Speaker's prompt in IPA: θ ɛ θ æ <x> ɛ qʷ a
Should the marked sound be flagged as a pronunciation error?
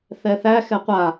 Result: no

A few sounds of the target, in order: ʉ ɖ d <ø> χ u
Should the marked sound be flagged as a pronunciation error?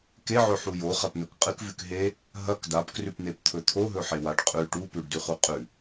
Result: yes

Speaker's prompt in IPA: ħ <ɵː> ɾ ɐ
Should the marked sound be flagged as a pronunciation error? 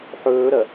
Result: no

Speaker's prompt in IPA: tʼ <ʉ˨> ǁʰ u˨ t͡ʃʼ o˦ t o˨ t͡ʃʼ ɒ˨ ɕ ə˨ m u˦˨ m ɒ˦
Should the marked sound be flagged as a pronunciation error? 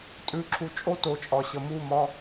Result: no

